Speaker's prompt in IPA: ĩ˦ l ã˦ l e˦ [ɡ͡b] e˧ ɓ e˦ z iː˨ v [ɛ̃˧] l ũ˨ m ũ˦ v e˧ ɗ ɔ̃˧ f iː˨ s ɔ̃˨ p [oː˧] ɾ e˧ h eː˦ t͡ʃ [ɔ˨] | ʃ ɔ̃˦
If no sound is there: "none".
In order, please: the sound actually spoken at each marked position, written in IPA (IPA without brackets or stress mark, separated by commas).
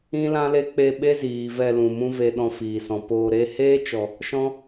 k͡p, ɛ˧, oː˧, ɔ˨